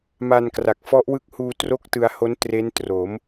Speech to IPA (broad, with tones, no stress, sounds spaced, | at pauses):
m a˧ n k r a˨˩ k̚ f ɔ˦˥ ʔ w ɯ˦˥ k̚ h uː˧ t r o˥˩ k̚ t ɯ˧ a̯ h o˦˥ n t r e˦˥ n t r o˩˦ m